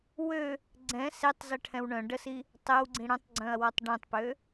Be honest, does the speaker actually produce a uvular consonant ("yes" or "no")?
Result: no